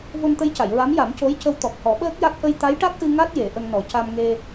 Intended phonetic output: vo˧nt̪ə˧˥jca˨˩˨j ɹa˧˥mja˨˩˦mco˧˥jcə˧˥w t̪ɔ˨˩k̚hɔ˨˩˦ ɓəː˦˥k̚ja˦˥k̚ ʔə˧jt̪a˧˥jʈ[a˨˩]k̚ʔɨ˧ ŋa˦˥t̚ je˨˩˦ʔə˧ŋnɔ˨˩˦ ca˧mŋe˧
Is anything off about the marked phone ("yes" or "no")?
yes